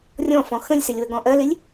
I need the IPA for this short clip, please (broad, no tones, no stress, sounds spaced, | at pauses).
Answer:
rʲ ɔ̃ f ɔ̃ x ə̃ lʲ s ɪ lʲ w ə ɡ ɔ̃ ʔ ɜ l ɪ lʲ